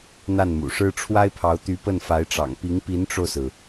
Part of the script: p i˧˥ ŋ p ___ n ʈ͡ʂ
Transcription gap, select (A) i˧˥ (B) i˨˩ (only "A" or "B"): A